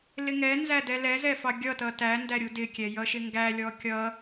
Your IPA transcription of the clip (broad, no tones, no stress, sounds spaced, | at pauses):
l ɪ ŋ ɛ n z æ d ɛ l ɛ z ɛ f ɑ ɡʲ ʌ t ʌ t æ n d æ ɾʲ u d ɪ kʲ ɛ j ʌ ʃ ɪ ŋ ɡ æ lʲ ɔ kʲ ʌ